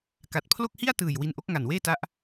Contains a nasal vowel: no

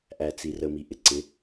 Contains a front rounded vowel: no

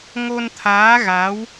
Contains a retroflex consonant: no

